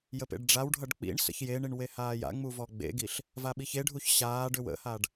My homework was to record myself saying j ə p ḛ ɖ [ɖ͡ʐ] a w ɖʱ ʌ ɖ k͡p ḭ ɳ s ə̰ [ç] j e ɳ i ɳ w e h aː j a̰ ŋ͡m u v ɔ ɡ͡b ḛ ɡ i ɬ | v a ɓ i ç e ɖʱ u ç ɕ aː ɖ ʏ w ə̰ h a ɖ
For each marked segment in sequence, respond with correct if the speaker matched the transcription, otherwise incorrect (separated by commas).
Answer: correct, correct